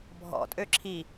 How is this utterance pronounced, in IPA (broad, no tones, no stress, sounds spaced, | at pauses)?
bʱ ɔ̰ tʼ ø ǁʰ i